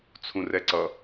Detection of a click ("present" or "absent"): present